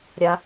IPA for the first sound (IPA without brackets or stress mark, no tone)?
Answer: ɾʲ